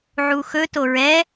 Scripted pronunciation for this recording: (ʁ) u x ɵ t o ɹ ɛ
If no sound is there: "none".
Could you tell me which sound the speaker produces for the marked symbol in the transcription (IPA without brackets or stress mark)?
ʕ